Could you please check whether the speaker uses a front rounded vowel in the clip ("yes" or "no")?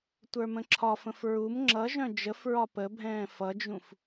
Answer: yes